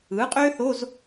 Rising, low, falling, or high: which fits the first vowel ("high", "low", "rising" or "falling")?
rising